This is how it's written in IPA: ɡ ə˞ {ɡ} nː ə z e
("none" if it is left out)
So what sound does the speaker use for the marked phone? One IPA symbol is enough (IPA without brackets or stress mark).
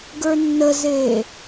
none